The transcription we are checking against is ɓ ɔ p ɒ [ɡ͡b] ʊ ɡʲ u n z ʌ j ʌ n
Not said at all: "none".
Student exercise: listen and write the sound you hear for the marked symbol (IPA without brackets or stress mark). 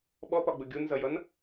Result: ɡ͡b